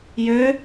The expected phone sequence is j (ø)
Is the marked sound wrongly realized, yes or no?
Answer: no